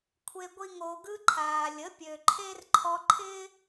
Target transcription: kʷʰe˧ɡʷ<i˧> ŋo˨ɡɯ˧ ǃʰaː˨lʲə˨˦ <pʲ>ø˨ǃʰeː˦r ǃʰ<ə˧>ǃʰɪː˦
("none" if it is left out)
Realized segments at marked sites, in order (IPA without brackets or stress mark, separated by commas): i˧, pʲ, ɔ˧